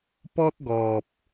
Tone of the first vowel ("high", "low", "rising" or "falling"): high